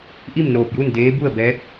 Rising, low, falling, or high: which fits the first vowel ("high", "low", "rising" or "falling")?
falling